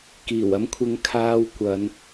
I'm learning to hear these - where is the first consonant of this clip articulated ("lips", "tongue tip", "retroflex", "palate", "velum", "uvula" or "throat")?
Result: velum